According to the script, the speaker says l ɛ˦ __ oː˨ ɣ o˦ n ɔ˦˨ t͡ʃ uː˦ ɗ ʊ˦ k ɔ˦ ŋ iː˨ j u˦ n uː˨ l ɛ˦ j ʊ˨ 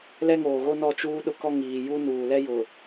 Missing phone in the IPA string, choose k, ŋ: ŋ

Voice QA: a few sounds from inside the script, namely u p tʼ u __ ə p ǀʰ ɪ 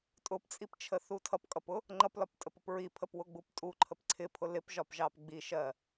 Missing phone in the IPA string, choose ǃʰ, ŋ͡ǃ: ǃʰ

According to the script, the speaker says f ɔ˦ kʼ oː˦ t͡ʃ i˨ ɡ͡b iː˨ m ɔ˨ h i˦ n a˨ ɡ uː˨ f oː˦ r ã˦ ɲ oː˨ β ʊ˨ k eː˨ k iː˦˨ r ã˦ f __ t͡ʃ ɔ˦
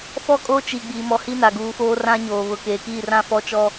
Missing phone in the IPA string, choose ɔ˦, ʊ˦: ɔ˦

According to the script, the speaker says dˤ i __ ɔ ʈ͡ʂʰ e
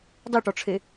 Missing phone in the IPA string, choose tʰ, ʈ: ʈ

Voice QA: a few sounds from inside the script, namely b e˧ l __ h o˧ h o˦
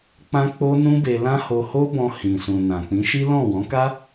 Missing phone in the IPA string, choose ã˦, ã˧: ã˦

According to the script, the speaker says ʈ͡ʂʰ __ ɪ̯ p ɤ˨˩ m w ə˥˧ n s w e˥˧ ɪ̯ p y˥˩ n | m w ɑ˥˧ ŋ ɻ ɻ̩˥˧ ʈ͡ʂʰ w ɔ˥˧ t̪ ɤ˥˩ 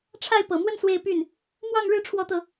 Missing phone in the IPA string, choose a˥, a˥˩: a˥˩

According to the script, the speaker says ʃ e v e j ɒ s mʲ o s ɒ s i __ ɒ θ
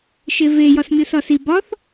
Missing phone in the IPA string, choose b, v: b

